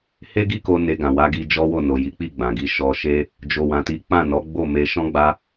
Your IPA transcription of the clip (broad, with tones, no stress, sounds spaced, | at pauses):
h e˦ ɡ i˦ k o˧ n e˧ ɡ ã˨ w a˨˦ ɡ i˧ d͡ʒ ɔ˦ w o˦˨ n o˨ j i˨˦ k͡p i˦˨ ɡ͡b ã˨ ɡ i˧ ʃ ɔ˧ ʃ e˦ | d͡ʒ o˨ w ã˨ t i˨˦ k͡p ã˦˨ n ɔ˨˦ ɡ͡b o˦˨ m e˧ ʃ ɔ̃˦ ɡ͡b a˦